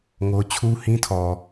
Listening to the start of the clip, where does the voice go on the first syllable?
high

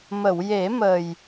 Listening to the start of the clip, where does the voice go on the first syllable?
low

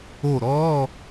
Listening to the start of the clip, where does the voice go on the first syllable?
falling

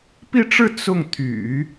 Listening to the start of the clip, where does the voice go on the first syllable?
falling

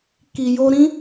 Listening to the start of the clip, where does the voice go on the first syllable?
low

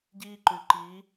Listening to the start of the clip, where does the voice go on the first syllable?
high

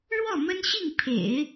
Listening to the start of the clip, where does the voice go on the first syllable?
falling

